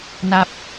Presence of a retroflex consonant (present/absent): absent